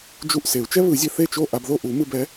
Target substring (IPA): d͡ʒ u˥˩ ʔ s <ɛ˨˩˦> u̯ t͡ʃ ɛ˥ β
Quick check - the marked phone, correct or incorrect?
incorrect